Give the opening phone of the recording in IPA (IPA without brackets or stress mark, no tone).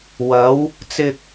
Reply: w